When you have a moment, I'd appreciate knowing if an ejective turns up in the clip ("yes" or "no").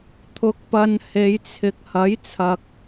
no